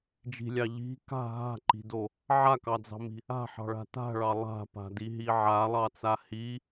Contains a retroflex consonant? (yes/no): yes